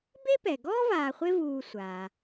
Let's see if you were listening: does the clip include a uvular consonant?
yes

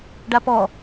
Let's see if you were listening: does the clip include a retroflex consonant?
yes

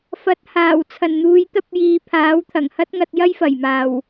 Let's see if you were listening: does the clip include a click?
no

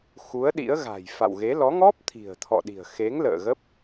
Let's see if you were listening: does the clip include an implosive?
yes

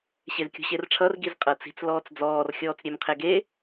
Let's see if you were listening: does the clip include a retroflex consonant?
yes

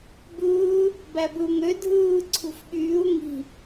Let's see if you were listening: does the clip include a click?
yes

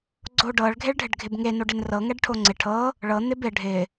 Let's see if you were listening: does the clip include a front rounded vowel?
no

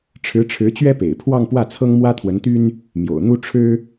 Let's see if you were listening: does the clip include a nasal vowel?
no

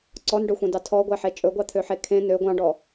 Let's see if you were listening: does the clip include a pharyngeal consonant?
yes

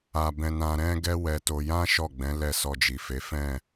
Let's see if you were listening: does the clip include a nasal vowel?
yes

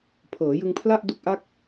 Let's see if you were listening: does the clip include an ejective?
no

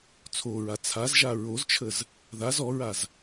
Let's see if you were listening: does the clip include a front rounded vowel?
no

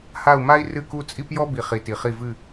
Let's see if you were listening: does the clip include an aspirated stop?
no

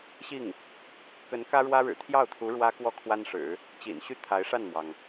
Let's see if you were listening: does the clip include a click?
no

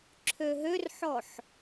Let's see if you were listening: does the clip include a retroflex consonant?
no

